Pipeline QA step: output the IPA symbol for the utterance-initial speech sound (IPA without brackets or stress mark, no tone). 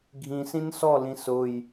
ɡʱ